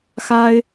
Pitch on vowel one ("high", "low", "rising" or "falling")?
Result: high